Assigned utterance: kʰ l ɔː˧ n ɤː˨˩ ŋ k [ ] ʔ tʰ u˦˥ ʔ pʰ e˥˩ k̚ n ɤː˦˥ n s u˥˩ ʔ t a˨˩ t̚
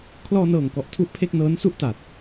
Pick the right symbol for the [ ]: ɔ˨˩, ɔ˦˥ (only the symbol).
ɔ˨˩